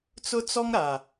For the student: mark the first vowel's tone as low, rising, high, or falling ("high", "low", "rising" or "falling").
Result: high